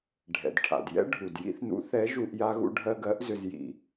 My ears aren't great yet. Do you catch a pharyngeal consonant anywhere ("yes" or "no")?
no